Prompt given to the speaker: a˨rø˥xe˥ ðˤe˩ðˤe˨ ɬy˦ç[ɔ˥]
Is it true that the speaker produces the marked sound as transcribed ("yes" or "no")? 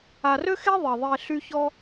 yes